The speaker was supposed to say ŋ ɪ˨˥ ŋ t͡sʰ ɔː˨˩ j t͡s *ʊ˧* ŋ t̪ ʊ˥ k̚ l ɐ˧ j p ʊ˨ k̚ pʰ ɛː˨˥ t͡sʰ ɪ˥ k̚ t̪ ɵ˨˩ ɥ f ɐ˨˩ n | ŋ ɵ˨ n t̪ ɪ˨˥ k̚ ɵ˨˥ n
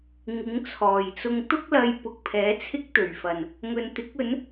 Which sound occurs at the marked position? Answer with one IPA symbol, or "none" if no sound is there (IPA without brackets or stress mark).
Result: ʊ˧